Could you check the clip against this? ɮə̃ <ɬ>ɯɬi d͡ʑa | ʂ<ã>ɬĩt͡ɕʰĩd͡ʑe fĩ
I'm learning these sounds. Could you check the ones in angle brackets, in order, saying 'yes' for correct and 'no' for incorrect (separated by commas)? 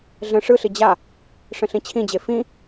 no, no